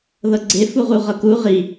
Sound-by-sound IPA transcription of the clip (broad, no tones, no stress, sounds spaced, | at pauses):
ð ɤ ɡ͡ǀ e f u ʁ u ʁ ɤ k u ʁ i